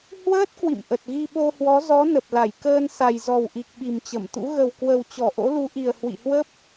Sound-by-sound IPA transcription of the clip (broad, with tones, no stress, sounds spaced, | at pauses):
h w əː˦˥ t̚ k w ḭ˧˨ m ʔ ə˨˩ t̚ ɣ i˧ ɓ o˧ h w ɔ˨˦ z ɔ˨˦ n ə˨˩ p̚ l a˧˩ j k əː˧ n s a˨˩ j z ɔ˨˩ w ʔ i˨˩ k̚ ɓ i˨˩ m t͡ɕ ə˧˩ m t̪ ṵ˧˥ ɣ ə˨˩ w k w ə˨˩ w t͡ɕ ɔ˧˩ ʔ o̰˧˥ l u˨˦ ʔ i˨˩ ə̯ h w ḭ˧˨ h w ə˦˥ p̚